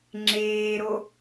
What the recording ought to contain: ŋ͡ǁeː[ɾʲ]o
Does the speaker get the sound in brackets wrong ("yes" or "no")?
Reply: yes